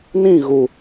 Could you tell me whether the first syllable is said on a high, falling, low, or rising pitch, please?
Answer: falling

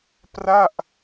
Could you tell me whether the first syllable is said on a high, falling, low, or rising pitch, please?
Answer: falling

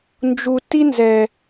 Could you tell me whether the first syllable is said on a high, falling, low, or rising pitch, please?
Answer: low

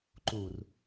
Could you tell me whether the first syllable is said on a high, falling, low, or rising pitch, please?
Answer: low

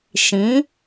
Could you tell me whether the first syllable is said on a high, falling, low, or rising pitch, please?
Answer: rising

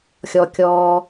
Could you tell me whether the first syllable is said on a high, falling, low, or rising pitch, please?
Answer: low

